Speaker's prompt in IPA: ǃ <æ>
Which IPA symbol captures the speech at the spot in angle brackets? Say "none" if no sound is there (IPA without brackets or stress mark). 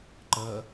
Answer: ɜ